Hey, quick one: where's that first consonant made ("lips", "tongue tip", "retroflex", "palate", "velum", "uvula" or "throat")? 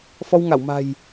lips